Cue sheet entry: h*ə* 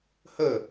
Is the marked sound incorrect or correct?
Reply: correct